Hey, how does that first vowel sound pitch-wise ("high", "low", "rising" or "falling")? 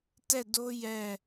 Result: falling